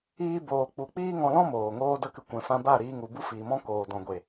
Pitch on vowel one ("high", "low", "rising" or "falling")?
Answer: high